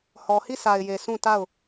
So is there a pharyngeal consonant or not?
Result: no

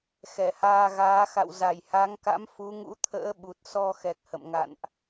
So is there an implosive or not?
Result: yes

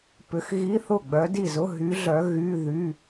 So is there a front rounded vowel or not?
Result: yes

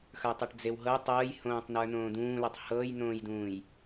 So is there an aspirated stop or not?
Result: no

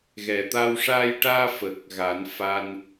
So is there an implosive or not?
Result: no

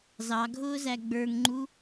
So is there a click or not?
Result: yes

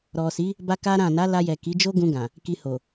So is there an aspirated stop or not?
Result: no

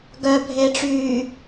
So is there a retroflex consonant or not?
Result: yes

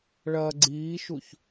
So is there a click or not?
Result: yes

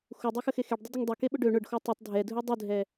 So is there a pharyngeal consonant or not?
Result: no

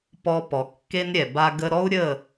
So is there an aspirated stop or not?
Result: no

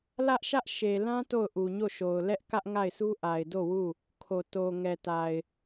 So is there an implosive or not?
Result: no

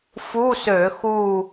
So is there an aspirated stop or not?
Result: no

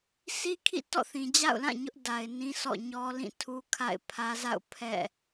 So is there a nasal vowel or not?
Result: yes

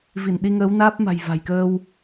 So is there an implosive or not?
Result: yes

